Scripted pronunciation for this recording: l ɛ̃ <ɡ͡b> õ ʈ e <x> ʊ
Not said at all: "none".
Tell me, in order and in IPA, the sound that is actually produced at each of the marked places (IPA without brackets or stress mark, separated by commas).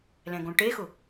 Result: ɡ, x